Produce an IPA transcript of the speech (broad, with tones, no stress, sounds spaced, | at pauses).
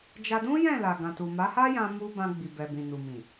d͡ʒ a˧ d ũ˦ j ɛ̃˦˨ l a˨ ɡ ã˨ t u˨ m a˨˦ h a˦ j ã˧ m u˧ b ã˧ ɡ͡b i˨ b ɛ˨ b ĩ˨ n u˨ m ĩ˨